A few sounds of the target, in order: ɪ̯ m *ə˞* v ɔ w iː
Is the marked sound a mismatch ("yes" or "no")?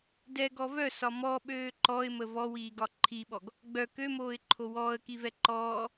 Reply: yes